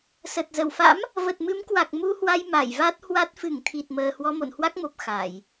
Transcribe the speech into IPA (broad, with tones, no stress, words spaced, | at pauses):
sə˨˩t̚ zə˧˩wfa̰˧˥m | və˨˩t̚mɨ˨˦mkwa˨˩k̚ mu˧hwa˧j ma˧˩jva˦˥t̚hwa˦˥t̚ fɨ˧˩ŋt̪ʰi˨˩t̚məː˨˩ hwɔ˧mo̰˧˨nhwa˦˥k̚mo˨˩p̚ xa˧˩˨j